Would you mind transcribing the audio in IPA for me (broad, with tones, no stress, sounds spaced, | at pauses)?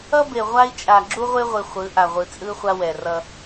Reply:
ʌ˦ b e˨ ʁʷ a˦ i̯ t͡ʃʼ a˨ ɡ͡ǁ u˦ ʁʷ e˦ ʁʷ i˨ χʷ ɯ˨˦ ʔ a˨ ʁʷ ɯ˨ t͡sʼ ɯ˦ χʷ a˦ w ɛ˨ r ʌ˦